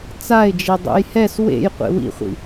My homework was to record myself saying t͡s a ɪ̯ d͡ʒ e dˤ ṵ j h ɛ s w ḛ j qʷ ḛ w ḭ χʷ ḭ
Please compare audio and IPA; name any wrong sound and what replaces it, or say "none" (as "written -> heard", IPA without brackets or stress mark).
none